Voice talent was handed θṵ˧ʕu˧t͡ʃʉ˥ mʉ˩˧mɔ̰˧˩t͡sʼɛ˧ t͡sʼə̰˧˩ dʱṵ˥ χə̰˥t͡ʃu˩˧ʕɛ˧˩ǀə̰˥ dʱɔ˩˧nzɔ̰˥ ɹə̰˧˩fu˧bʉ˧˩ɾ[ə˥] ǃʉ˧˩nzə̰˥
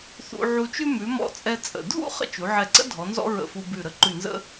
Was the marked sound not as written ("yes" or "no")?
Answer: no